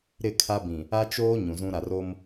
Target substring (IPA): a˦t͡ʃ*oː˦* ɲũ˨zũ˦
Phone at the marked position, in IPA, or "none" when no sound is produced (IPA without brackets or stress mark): oː˦